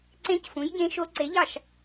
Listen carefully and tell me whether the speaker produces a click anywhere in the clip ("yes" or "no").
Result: yes